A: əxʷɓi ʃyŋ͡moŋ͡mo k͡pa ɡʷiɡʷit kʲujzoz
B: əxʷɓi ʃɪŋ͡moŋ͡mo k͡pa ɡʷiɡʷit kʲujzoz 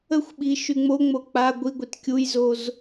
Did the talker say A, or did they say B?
A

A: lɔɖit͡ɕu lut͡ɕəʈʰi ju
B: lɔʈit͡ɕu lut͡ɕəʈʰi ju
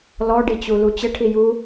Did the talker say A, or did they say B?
A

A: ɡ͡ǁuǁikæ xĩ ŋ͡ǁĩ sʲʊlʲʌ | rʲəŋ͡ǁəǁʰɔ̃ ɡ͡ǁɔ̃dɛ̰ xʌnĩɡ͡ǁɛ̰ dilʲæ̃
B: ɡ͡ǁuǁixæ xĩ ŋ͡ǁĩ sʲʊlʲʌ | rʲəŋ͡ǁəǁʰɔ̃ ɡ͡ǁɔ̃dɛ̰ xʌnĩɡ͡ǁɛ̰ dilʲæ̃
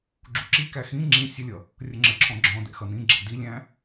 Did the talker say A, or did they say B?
A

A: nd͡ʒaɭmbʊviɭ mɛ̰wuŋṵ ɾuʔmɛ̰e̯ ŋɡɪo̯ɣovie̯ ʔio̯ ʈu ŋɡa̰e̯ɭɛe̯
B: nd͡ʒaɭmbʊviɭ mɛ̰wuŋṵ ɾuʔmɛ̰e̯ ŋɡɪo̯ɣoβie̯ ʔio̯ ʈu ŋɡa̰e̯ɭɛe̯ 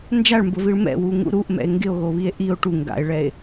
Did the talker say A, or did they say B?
B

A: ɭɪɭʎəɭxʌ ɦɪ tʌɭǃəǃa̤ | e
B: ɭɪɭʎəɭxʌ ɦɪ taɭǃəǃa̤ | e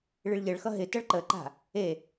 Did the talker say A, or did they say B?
A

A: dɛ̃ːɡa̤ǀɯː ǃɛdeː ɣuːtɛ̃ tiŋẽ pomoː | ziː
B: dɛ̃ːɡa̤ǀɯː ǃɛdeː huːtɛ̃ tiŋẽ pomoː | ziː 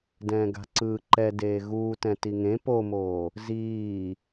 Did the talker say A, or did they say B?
A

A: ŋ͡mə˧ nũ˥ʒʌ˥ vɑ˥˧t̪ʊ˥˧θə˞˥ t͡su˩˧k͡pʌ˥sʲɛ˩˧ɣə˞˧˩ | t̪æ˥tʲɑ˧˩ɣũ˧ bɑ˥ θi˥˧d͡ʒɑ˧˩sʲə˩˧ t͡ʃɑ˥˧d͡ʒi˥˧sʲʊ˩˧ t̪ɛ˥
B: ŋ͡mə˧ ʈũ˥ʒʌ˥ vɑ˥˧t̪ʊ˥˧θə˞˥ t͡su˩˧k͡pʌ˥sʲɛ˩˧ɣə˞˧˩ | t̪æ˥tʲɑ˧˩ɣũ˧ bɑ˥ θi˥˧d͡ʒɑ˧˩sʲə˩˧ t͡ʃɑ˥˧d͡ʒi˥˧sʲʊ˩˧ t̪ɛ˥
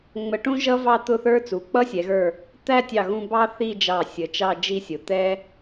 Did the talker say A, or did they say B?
B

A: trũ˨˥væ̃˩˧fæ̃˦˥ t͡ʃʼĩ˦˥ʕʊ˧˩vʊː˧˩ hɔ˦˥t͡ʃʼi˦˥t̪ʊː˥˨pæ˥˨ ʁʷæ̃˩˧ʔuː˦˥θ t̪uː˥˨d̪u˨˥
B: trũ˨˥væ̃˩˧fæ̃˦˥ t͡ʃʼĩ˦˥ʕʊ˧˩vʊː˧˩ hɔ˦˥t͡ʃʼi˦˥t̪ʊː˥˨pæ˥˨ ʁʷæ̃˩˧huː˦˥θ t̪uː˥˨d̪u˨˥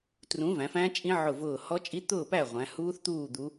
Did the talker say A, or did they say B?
B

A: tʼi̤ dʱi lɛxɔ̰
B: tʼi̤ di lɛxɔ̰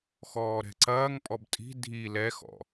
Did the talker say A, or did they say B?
A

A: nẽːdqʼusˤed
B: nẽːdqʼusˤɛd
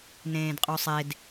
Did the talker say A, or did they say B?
A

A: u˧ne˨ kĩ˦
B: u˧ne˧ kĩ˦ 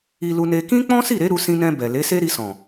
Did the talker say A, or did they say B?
B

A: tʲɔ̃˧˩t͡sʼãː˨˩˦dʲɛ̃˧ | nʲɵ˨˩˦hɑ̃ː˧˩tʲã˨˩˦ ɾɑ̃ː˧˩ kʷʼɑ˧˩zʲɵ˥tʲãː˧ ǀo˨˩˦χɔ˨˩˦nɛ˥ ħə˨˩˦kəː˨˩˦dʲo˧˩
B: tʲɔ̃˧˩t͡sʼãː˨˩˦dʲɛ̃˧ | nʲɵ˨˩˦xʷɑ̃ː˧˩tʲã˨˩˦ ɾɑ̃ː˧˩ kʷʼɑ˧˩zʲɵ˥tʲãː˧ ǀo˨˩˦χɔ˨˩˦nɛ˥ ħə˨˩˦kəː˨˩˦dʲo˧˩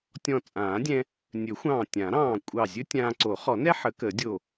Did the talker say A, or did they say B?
B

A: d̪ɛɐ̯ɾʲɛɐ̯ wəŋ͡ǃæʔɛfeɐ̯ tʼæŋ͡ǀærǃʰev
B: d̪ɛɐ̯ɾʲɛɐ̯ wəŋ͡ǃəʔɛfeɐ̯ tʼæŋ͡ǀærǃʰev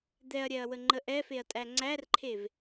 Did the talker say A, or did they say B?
B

